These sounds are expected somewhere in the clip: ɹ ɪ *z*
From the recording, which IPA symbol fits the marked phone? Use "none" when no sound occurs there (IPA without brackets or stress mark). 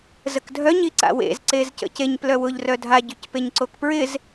z